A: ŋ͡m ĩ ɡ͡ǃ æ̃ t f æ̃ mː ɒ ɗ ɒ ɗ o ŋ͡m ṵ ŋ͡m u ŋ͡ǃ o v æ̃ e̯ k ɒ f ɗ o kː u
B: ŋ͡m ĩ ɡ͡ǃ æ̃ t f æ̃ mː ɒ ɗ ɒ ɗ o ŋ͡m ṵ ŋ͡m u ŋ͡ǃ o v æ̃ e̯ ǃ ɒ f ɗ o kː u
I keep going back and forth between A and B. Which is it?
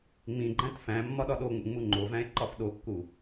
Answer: B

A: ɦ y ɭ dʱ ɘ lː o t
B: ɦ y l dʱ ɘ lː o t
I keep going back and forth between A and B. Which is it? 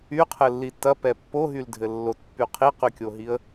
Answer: B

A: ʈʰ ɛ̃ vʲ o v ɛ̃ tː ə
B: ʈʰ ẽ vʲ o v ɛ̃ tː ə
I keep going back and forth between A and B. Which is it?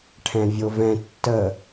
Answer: A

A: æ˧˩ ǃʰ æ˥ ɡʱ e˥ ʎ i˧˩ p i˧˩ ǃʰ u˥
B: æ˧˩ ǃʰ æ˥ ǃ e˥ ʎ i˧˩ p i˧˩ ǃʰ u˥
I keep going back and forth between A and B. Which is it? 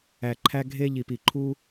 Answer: A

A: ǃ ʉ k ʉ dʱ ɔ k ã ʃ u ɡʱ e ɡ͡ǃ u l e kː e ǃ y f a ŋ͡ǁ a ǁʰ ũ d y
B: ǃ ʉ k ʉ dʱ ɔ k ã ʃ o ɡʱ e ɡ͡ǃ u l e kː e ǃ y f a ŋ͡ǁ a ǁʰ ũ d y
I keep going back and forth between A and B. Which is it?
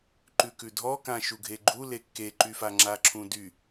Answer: A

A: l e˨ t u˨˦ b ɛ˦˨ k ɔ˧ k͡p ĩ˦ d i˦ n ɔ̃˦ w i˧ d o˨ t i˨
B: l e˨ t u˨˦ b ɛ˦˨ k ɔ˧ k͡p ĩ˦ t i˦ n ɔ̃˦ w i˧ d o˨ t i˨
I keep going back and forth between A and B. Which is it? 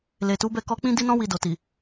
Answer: A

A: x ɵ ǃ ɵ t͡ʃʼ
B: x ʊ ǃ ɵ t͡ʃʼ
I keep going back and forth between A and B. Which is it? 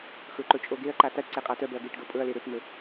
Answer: A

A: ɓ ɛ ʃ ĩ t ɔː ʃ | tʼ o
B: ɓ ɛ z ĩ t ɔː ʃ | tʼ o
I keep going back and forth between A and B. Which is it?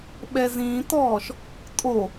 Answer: B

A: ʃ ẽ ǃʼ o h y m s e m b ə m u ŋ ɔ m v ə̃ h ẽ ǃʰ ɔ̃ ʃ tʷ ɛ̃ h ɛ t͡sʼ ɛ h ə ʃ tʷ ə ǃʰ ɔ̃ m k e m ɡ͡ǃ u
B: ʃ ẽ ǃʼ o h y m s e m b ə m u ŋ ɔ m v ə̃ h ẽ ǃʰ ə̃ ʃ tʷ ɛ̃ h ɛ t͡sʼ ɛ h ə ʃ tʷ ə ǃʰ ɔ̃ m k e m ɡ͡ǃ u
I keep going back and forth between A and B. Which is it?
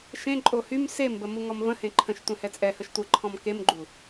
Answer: B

